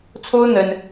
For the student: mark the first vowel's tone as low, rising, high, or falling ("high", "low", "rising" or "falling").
high